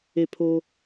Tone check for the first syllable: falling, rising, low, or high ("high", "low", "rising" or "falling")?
falling